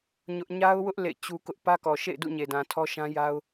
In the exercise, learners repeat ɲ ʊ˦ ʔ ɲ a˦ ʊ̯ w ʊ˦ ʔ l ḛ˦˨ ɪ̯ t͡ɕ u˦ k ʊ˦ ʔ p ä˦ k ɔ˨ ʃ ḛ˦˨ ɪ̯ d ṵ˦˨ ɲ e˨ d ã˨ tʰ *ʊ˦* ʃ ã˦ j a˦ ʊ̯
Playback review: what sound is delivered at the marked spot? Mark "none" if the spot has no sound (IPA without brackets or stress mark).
ɔ˦